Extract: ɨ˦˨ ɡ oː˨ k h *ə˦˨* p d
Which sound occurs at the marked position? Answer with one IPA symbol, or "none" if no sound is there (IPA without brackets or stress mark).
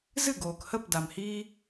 ə˦˨